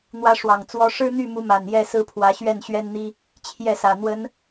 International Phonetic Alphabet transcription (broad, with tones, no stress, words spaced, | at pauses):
n̪wä˦ʂwɑ˨˩ŋt͡swɔ˦ ʂɻ̩˦n̪y˥˨mu˨˦ ma˨˩njɛ˥˨ sɹ̩˦pʰwä˨˦ɕɥɛ˥˨n ɕɥɛ˦nn̪i˦ | t͡ɕʰjɛ˥˨sä˨˩ n̪wə˨˦n